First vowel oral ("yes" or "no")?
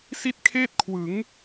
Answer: yes